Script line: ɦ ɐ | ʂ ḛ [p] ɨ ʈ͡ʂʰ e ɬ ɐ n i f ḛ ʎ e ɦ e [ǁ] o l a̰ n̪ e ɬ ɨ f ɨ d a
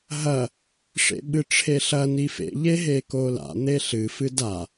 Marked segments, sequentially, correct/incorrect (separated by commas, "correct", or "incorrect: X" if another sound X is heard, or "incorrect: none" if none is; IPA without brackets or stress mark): incorrect: ɓ, incorrect: k